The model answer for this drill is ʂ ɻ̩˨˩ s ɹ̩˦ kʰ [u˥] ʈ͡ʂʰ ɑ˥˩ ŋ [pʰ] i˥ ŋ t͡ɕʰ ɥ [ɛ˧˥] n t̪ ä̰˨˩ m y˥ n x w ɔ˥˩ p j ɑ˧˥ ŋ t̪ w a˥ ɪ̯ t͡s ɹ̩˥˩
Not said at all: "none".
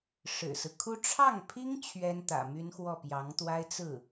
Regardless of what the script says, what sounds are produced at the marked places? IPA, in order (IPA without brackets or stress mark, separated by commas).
u˥, pʰ, ɛ˥